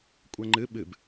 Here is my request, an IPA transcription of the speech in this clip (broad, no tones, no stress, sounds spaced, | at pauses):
kʷʼ ɛ ŋ͡ǃ ɨ ɓ ɨ b